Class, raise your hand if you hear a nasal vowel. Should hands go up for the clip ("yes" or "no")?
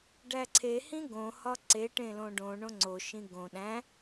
yes